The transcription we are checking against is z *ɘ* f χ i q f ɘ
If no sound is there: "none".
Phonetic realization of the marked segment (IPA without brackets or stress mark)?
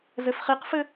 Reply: ɘ